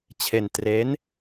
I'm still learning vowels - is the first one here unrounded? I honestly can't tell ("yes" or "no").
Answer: yes